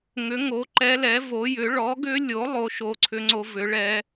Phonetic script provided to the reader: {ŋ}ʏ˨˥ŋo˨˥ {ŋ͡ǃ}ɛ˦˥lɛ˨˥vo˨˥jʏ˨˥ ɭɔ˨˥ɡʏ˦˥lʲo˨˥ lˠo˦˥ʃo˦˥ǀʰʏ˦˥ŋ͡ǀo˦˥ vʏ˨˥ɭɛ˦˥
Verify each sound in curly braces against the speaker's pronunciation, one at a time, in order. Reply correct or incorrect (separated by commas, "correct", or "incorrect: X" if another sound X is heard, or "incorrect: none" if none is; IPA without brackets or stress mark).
correct, incorrect: ǃ